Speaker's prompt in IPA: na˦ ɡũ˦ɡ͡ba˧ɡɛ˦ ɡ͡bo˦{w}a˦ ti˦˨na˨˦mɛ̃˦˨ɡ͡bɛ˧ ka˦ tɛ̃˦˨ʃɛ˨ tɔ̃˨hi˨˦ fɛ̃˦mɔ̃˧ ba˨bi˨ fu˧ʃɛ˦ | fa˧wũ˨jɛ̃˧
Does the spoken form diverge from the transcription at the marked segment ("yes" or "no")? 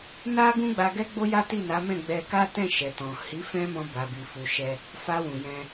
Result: yes